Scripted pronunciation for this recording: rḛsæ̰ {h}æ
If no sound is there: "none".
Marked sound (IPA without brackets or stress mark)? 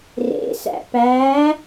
p